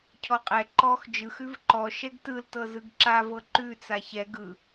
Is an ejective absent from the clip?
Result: no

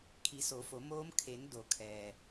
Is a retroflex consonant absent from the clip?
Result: yes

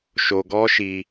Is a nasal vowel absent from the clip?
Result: yes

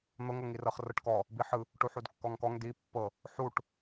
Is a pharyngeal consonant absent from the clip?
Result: no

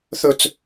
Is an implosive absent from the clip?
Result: yes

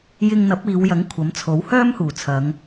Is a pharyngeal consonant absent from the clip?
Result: yes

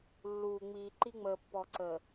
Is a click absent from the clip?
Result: no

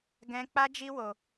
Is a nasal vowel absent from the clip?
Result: no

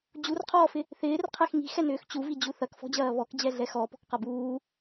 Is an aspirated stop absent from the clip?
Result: no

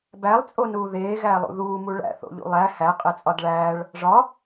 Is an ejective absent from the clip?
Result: no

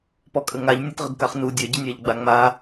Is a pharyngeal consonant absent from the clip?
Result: yes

